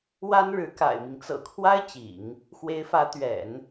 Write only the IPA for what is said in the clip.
w a˥ n ɻ ɻ̩˧˥ k a̰˨˩ ɪ̯ m i˦ ŋ t͡s ɤ̰˨˩ kʰ w a˥ ɪ̯ t͡ɕ ḭ˨˩˦ ŋ | x w e˧˥ ɪ̯ f ä˧˥ t̪ ɥ ɛ̰˨˩˦ n

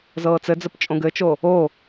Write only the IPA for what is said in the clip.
z ɤː t͡s ɘ d͡z ə p t͡ʃʼ õ ɡ ɘ t͡ʃ o | o

